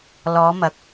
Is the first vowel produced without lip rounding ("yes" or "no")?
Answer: no